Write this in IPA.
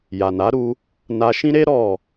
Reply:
ja˨na˨˦ɾu˧ | na˧ʃĩ˦ɾe˦ ɾɔ˦˨

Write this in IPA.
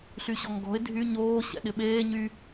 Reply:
ɬyɕɔŋɡɔ̤ɪ̯ dʱy ɲoː ɕɛ̰ɗɪɓeː ɲy

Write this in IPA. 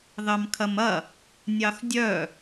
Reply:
ðɑmkʰɐmɐ | nʲɑxdʲœ

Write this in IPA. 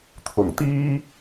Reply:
t̪ʰʊ˨˩ŋt̪iː˥

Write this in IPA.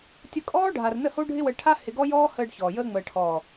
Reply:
tʲə˧kʼɔː˦ ɖʱa˨rnə˦˨ho˦ ɖʱɪ˦wə˧ ʈʰa˦ hɪ˧ɡɔ˦jɔː˦ həː˧ɖ çɔː˨jəː˦ ŋ͡məː˨ʈʰɔː˨

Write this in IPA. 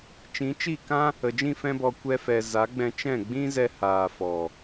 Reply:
t͡ʃĩ˨˦t͡ʃi˦˨kã˦ | ə˨d͡ʒĩ˦˨ fɛ̃˧bɔ˨ kʷɛ˧fɛ˨ za˨˦ɡ͡bɛ̃˧t͡ʃɛ̃˦˨ ɡ͡bĩ˦zɛ˧haː˨ fɔ˨

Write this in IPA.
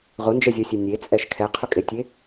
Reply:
ʁʊnd͡ʒɛzʲɔsʲe nʲet͡sʼɛʃ kʰɛqʰʊkʼetʲe

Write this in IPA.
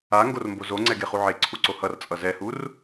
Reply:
a ŋɡormbozo ŋ͡ǀɛɡeχuʕe ǀʰuǀohʌr t͡sʼʌzɛhur

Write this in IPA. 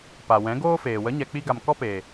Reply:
pa˨wɛ̃˨˦ɡoː˦feː˨ wə˨˦ɲɛ˨k͡pi˧ɡa˨m kɔ˦peː˨

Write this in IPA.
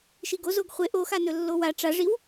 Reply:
ʃiɡoz oɡχʷe ʔoxanɵ lːowa ʈ͡ʂaʐiw

